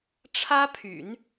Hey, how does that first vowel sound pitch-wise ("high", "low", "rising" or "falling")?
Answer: high